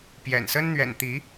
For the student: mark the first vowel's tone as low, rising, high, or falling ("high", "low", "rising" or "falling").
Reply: low